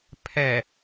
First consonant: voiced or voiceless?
voiceless